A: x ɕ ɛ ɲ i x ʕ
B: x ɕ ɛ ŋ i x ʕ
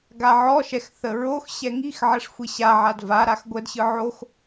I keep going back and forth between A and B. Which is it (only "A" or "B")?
B